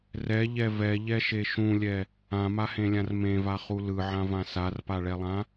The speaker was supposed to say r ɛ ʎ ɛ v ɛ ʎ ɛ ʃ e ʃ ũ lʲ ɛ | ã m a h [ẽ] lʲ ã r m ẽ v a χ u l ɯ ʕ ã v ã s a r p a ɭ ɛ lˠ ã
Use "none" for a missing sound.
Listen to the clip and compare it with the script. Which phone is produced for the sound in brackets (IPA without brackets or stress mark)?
ẽ